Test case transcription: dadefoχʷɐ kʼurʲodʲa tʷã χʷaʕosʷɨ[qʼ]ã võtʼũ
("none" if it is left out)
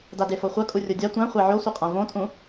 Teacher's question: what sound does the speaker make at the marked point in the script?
qʼ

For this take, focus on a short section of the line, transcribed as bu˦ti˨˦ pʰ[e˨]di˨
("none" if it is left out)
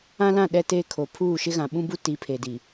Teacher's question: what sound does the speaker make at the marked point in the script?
e˨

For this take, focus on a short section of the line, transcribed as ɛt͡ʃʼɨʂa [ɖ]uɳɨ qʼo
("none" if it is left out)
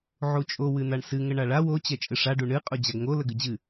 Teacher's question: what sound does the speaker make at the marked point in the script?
ɖ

